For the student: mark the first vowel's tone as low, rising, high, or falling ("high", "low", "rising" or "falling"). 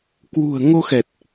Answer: low